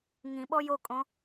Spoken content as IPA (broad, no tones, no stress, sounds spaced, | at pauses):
ŋ ĩ ɓ ɔ j o kʼ õ